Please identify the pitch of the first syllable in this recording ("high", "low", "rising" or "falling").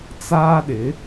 high